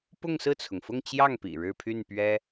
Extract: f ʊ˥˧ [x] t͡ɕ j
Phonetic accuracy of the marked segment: incorrect: ŋ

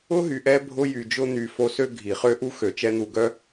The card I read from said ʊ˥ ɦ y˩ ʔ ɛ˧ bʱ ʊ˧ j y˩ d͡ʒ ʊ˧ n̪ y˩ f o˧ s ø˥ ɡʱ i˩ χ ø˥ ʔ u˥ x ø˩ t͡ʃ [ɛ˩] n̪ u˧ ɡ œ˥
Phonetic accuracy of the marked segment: incorrect: ɛ˥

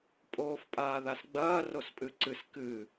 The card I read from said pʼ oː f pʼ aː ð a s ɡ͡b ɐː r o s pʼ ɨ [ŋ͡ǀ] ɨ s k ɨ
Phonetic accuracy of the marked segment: incorrect: ǀ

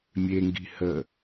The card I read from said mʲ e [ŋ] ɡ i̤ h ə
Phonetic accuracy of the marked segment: correct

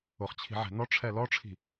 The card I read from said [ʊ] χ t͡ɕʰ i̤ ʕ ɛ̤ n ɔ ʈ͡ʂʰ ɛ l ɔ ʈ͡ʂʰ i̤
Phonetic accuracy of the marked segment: correct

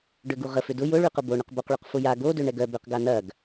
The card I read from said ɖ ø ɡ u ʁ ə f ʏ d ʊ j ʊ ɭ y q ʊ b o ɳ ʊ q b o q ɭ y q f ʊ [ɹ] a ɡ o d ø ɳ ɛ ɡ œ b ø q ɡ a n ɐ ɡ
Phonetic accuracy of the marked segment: incorrect: j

